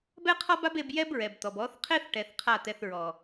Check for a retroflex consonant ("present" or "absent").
present